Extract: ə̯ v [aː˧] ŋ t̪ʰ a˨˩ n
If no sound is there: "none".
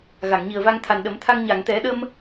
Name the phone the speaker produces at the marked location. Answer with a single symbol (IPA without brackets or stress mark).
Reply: a˧